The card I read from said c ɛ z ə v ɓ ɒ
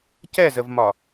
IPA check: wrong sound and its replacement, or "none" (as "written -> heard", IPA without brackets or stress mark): ɓ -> m